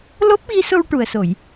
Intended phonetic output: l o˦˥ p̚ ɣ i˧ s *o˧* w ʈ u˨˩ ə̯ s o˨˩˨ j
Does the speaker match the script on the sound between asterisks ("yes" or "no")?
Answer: yes